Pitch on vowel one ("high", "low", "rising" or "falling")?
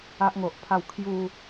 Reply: high